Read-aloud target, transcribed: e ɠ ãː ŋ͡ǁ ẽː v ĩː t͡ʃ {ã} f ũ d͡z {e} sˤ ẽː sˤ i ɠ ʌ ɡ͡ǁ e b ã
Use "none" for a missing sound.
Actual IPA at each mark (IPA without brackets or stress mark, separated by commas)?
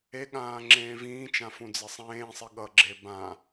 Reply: ã, e